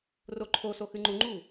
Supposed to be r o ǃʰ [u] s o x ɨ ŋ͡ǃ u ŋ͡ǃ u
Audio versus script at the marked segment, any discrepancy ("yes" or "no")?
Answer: yes